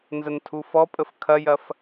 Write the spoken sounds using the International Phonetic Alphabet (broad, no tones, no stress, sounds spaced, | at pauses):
n z ə n tʰ u f ɔ pʼ ə f kʰ ɐ j ɐ f